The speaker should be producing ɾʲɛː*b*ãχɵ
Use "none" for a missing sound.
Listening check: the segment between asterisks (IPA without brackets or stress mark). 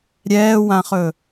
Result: w